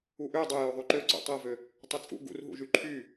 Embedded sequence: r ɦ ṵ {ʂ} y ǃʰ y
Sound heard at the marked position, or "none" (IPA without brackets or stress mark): ʒ